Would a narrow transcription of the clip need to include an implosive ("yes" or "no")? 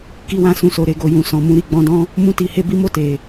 no